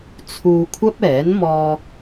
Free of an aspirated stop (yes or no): no